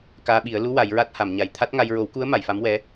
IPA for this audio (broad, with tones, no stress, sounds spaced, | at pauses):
k aː˧ ɓ i˨˩˦ ə̯ l u˧˥ w a˨˩˦ j ɹ a˦˥ t̚ h a˨˩˨ m ɲ a˨˩ j t̪ʰ a˦˥ t̚ ŋ a˧ j ɹ o˨˩˦ w k u˧˥ ə̯ m a˨˩˨ j f a˧˥ m w ɛ˧˥